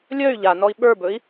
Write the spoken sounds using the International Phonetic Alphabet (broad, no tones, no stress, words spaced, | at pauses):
lʲœy̯ ʎanɔi̯ ɓə˞bɵi̯